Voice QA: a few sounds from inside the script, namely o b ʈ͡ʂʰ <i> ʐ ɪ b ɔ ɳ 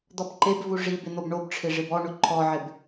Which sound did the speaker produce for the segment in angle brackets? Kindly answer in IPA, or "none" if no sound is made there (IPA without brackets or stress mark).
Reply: ɪ